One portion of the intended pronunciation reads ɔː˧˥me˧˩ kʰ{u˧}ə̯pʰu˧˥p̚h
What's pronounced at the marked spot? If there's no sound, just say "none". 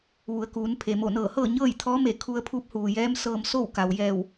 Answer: u˧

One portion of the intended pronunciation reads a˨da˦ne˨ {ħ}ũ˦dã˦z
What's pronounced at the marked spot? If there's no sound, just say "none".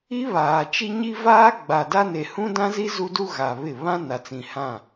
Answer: h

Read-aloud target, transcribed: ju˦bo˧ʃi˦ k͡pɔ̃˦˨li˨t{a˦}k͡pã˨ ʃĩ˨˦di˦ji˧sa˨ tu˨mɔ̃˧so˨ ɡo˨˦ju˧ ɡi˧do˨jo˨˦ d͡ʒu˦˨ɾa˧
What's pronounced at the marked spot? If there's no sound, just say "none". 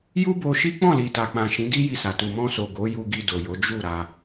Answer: a˨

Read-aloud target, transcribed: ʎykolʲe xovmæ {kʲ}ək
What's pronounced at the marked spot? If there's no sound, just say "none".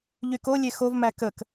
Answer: k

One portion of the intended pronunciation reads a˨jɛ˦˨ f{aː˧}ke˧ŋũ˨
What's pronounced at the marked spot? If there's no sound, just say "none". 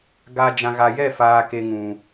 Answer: aː˧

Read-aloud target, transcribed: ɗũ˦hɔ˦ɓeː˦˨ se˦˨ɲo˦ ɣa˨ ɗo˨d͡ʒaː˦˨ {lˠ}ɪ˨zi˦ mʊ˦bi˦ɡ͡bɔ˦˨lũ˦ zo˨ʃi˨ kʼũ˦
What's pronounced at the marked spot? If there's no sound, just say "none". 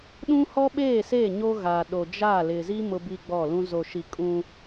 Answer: l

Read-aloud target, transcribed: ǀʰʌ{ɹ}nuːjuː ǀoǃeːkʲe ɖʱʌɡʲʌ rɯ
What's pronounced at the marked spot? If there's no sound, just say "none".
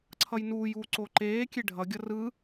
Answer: j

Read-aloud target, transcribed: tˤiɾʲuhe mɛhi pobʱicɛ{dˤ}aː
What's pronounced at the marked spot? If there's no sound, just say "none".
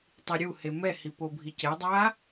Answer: dˤ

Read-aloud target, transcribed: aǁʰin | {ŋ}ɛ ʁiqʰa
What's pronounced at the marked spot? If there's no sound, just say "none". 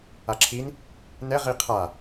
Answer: n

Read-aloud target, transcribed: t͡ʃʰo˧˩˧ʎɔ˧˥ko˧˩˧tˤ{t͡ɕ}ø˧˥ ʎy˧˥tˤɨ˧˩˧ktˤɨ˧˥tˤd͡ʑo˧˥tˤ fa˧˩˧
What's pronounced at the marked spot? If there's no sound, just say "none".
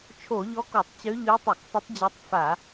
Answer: t͡ɕ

